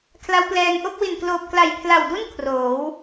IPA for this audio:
kʰ l a˦˥ w p l ɛː˧ ŋ ʔ o˥˩ k̚ w i˨˩ n k l oː˨˩ p̚ k l a˨˩ j pʰ l a˨˩ w d u˥˩ n kʰ r oː˩˦ w

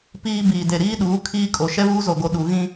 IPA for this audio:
p iː˦ b iː˨ d e˨ ɾ iː˦ ɗ uː˨˦ kʰ iː˦ kʼ o˨ ʃ ɛ˦ β uː˦ z o˨ ɡ o˨ ɗ u˨ ɣ ĩ˦

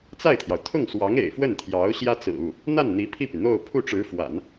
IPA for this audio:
t͡s a˥˩ ɪ̯ t̪ʰ j ɑ˩ ʊ̯ t̪ʰ ʊ˥˩ ŋ s w ɑ˧˥ ŋ ḛ˨˩ ɪ̯ f w ə˥˩ n t̪ʰ j ɑ˧˥ ʊ̯ ɕ j ä˥ t͡s ɹ̩˨˩ u˥˩ | n̪ a˥˩ n n̪ i˧˥ pʰ i˥˩ p y˩ n̪ o˥˧ ʊ̯ pʰ u˥˩ ʈ͡ʂ ɻ̩˧˥ f w a̰˨˩˦ n

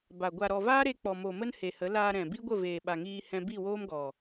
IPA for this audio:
b a˨ ɡʷ a˨ ɾ ɔ˨ v aː˦ ɾ e˧ k͡p ɔ˨ m o˨ m ə˦ n h e˨ h ə˨˦ l aː˧ ɾ ɛ̃˨ b i˦ ɡʷ ə˦˨ v eː˨ ɓ a˨ ŋ iː˧ h ɛ̃˧ b i˦˨ w oː˦ m ɡ ɔ˨

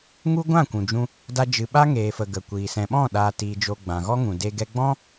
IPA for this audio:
ŋ u˦ ɡʷ ã˦˨ kʷ ũ˨ d͡ʒ ũ˧ | d a˦ d͡ʒ ɨ˧ ɓ a˦ ŋ eː˨ f ə˨ ɡ ə˨ kʷ iː˨ s ɛ̃˨ ɓ ɔ̃˦˨ ɗ aː˨ t iː˨ d͡ʒ oː˨ ɡ͡b ã˨ ɣ ɔ˦ ŋ ũ˨ d e˧ ɡ ɛ˧ ɡ͡b ɔ̃˦

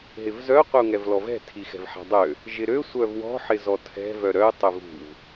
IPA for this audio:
ɦ ɪ v z œ qʷ ɪ u̯ ŋ ɛ v l ɔ v ɛ̤ tʰ i x ɛ̤ v ħ ɛ̤ dˤ ø | ʒ ɪ ɾ ø sʷ œ v w ɔ̤ ħ ɪ z ɔ tʰ ɛ̤ v œ ɾ œ y̯ tˤ ʏ v ṳ v

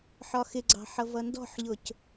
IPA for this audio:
ħ ɒ x ɪ ɡ͡ǀ ɑ̤ ħ ʌ v ʌ n d ɔ̤ ħ ʎ ʊ c

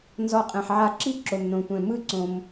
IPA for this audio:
n z ɔ˨ qʼ ɛ̃˩ ħ ʕ a˨ ǁ i˦ ǁ o˩ m n õ˩ tʷ ɛ̃˩ m ɯ˦ ǀ õ˨ m

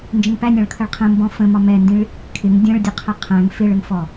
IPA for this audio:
n d͡ʒ ə̃ ŋ p æ nʲ ɑ̃ ɭ kʰ ə ɭ qʰ ə̃ m b ɔ̃ f ə̃ m ɒ m ɛ n d ĩ ɭ | kʰ ɪ ŋ dʲ ə̃ ɭ dʲ ə qʰ ə qʰ æ̃ ŋ f ɪ ɭ ə ŋ f ɔ

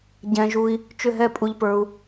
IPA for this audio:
ɟ ɛ̃˩ ʒ u˩ i̯ | t͡ʃ ʏ˧˩ ɦ ɛ˧˩ pʼ u˩ ʎ p ə˞˩ u̯

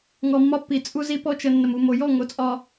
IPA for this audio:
ŋ ɔ˨ mː ɒ˦ pː i˨ t͡sʼ u˦ z i˦ p ɔ˦ t͡ʃ ə˨ nː ə˨ m u˨ m o˨ j ɔ˦˨ ŋ o˨ t͡sʼ ɒ˨

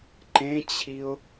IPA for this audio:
ǃ ẽ t͡ɕʰ i ʊ̯

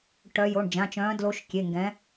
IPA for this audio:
ʈ œ˨˦ j o˩˧˩ ɳ d͡ʒ ã˩˧˩ t͡ʃ œ̃ː˨˦ d l o˨˦ ʃ kʲ e˩˧˩ ŋ ɡ ɛ̃˨˦

